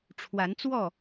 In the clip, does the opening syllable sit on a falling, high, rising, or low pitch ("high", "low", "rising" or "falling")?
rising